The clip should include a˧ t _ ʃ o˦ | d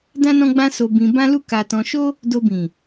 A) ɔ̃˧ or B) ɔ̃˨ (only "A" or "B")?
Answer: A